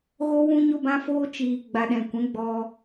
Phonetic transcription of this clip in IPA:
ɣ o˧ w ũ˧ ɲ o˧ b ã˧ f oː˧ t͡ʃ iː˨ ɡ͡b a˨ ɗ ɛ̃˨ kʷ ɛ̃˨˦ ɡ͡b ɔ˧

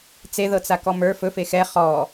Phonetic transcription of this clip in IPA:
t͡s e ð ɤ t͡s a k ɔ m ə˞ f ɵ f e x ɛ χ ɔ

